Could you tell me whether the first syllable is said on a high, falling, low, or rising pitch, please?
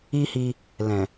high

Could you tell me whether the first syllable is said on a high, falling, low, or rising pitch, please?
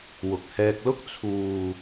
low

